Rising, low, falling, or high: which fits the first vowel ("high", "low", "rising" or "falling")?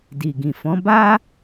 low